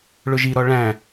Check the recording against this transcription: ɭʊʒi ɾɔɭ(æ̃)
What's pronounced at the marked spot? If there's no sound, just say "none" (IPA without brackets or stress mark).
æ̃